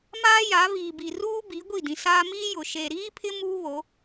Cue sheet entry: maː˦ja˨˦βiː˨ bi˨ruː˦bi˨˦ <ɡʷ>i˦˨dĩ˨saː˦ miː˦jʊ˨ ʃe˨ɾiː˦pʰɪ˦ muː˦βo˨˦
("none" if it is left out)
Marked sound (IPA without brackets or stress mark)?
ɡʷ